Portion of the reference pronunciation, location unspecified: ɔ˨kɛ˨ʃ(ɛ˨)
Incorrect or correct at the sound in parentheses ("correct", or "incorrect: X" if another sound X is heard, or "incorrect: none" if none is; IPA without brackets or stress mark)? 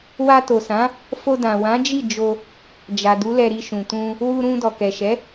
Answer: incorrect: ɛ˨˦